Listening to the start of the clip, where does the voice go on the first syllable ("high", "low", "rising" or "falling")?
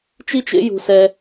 high